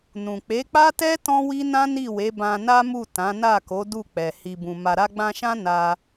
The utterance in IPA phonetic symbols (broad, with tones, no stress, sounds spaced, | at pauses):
n ũ˨ k͡p e˨˦ k͡p a˦ t ɛ˦ t ɔ̃˦ w i˦ n ã˦ n i˦˨ w e˨˦ b ã˧ n a˦ m u˦˨ t ã˨˦ n a˦˨ k o˨˦ d u˦˨ k͡p ɛ˨ h i˨ b ũ˨ m a˨ ɾ a˧ ɡ͡b ã˧ ʃ ã˦ n a˧